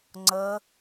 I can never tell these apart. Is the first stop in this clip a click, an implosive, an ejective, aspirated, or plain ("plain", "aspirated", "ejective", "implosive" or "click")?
click